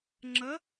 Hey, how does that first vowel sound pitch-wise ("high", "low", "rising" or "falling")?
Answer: rising